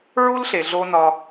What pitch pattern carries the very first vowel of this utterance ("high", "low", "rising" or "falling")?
high